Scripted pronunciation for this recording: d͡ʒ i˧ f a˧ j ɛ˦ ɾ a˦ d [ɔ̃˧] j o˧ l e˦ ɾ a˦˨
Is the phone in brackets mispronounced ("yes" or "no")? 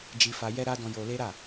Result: no